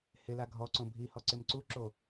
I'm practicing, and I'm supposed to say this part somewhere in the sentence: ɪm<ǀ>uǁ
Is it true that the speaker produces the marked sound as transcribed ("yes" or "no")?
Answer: yes